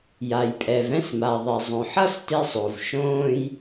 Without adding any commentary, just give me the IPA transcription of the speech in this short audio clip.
j a˩ j pʼ ɛ˩ v ɛ̃˥ s m a˩ ðˤ ɛ˩ zˤ õ˩ ħ ʌ˥ s t e˥ sˤ o˩ v ʃ õː˥ j

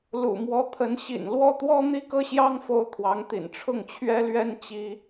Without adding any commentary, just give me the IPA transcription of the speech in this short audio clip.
l ṵ˨˩ m w ɔ˧˥ t̪ʰ ə˧˥ n ɕ ḭ˨˩ n l w ɔ˥˩ t̪ w ɔ˥ n̪ i˥˩ k ɤ˥ ɕ j ɑ˥ ŋ f o˥˩ ʊ̯ t̪ʰ w ɑ˧˥ ŋ t̪ ḭ˨˩ n ʈ͡ʂʰ ʊ˥˩ ŋ t͡ɕʰ ɥ ɛ˥ l ɥ ɛ˥ n t͡ɕ i˥

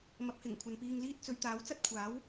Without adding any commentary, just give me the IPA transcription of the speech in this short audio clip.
m ɐ˨˥ p̚ h ɪ˨˩ ŋ kʷʰ ɐ˨ n p iː˧ ŋ l iː˥ t̚ t͡s ɵ˨ ɥ t̪ aː˨˥ w t͡s ɐ˥ t̚ kʷʰ aː˨˥ w

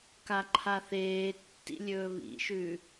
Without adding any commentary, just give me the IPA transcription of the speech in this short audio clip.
k a ǃʰ a θ eː tː ḭ lʲ ɵː β ḭ ʃ ʉ

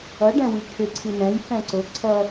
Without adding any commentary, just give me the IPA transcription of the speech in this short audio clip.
ʌ ɖ ɛ̃ w i kʰ ɪ ǀʰ i n ɛ̃ j f ɛ̃ ǀ ʊ ǀʰ ʌ

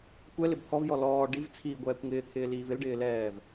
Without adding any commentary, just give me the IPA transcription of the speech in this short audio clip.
kʷ ɛ l ɪ b t̪ʰ ɔ v j ɔ l ɔː ɖ i v t͡sʰ iː ɡʷ ɛː kʷ ŋ ɪː t̪ʰ ɪː l iː v ɪ l ɖ ɪː l ɛː v

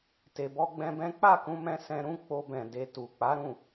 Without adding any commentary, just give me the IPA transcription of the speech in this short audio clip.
t e˧ b ɔ˦ ɡ͡b ɛ̃˦ b ɛ̃˦ k͡p a˦˨ k ũ˧ m ɛ̃˧ s ɛ̃˧ ɾ ũ˦ k͡p o˧ b ɛ̃˨ d e˧ t u˨ k͡p a˨˦ ɾ ũ˦˨

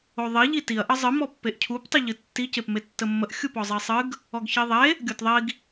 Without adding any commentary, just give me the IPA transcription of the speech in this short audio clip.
o ðˤ i ʎ i t i ɐ̯ ʔ ə zˤ ɨ m ɔ pː e ʔ cʰ u p tˤ i ʎ ɨ tː i c e p m e tː ə mː ə ʔ xʲ u p ɔ zˤ i sˤ ɨ ɡ | ɔ ɡ ç i ðˤ e | ɡʲ o t ðˤ i ɡ

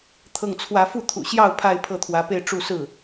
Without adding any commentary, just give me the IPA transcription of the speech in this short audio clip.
t̪ʰ ɤ˥˩ ŋ t͡sʰ w ä˥ f u˥˩ t̪ʰ ṵ˨˩ ɕ j ɑ˥˧ ʊ̯ pʰ a˥˧ ɪ̯ pʰ ɤ˥˩ t̪ʰ w ä˧˥ p e˥˧ ɪ̯ ʈ͡ʂ u˥˧ s ɹ̩˥˩

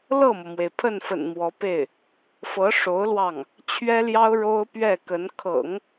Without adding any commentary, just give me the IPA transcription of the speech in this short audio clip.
l ɤ˥˩ m ɤ˩ m w e˩ ɪ̯ pʰ ə˥˩ n f ə̰˨˩ n m w ɔ˧˥ p e˥˩ ɪ̯ | f ɤ˧˥ ʂ o˧˥ ʊ̯ l w ɑ˥˩ ŋ | t͡ɕʰ ɥ ɛ˥ l j ɑ˥ ʊ̯ ɻ o˥ ʊ̯ p ɥ ɛ˥˩ k ə˧˥ n kʰ ɤ̰˨˩˦ ŋ

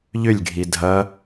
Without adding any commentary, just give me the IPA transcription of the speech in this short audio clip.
ʎ ʏ lʲ ɡʱ i dʱ ɐ

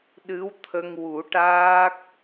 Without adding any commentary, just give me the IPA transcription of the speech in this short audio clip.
ɗ ɨ˧˥ w t̪ʰ ə˧ ŋ w u˨˩˦ ʈ aː˦˥ k̚

